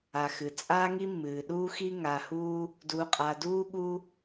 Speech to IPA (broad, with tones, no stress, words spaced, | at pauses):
a˩ xɨ˩ t͡sʼaː˦ŋi˦mːɨː˩ ɗuː˦xi˦ ŋa˨huː˦ | du˨qʼa˨duː˦ɠu˦